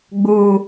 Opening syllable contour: high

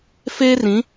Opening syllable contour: high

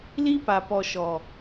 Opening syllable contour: high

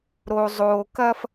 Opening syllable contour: low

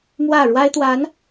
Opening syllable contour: falling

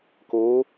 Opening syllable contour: rising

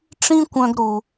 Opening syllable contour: high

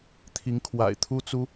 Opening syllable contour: rising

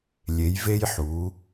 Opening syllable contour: rising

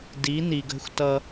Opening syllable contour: rising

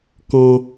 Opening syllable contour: high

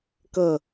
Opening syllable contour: falling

